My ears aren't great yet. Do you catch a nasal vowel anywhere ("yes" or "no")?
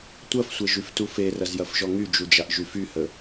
no